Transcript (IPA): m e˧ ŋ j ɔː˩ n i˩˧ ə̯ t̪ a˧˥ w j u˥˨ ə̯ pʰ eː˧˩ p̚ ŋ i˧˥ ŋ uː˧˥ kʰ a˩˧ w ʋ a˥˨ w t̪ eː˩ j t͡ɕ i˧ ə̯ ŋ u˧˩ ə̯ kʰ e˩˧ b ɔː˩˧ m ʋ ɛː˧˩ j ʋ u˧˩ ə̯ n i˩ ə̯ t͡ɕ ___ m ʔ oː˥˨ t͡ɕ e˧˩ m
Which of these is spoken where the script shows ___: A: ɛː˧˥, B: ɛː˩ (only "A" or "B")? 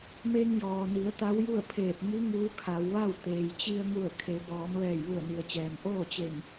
B